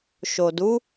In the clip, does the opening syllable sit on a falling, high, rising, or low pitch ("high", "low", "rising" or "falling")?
low